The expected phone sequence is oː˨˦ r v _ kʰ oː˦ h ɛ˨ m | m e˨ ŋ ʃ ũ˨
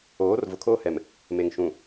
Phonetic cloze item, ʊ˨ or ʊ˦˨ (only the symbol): ʊ˨